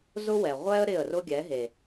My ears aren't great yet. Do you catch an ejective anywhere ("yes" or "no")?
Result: no